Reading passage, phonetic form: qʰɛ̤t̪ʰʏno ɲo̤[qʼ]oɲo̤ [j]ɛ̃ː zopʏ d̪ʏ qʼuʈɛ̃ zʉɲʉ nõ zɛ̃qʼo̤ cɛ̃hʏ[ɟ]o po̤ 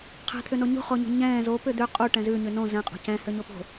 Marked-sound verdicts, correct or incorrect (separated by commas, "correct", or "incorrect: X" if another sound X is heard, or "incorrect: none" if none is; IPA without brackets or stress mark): incorrect: χ, incorrect: ɲ, incorrect: ɲ